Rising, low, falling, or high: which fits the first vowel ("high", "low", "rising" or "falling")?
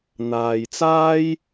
low